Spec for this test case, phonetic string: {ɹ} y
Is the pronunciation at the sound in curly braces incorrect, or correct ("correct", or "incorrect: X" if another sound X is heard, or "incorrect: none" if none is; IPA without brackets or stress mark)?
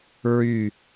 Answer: correct